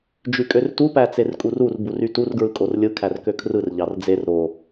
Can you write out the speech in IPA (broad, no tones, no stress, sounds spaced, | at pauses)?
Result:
d͡ʒ y kʼ ø r t u p æ t͡s e r kʼ u r u r b u r y t u r ɡ ɹ ɯ kʼ o r lʲ ɯ kʰ æ r k ø kʰ r ɯ r ʎ ɑ r d͡z e r ɾ o